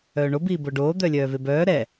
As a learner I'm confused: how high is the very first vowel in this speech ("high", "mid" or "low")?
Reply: mid